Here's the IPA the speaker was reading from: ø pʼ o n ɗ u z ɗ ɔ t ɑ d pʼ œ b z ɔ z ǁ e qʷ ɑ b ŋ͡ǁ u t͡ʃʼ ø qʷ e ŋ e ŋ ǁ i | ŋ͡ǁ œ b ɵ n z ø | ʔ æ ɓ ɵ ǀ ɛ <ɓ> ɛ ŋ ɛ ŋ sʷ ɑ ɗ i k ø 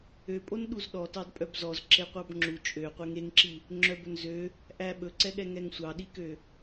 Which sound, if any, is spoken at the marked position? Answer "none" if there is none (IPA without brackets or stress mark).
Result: ɠ